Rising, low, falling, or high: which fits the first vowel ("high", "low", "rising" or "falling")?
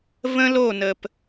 high